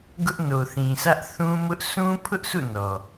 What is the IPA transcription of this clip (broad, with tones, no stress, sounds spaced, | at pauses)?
ɡ ʊ˦ ʔ n o˨ θ ĩ˨ sʰ ä˦ ʔ θ ũ˦ m ʊ˦ ʔ sʰ ũ˦ pʰ ʊ˦ ʔ sʰ ṵ˦˨ n ɔ˨